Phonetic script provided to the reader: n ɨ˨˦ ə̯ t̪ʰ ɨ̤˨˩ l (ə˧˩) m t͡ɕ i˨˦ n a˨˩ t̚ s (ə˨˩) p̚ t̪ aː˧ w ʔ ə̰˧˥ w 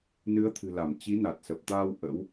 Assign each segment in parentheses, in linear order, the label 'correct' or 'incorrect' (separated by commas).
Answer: incorrect, correct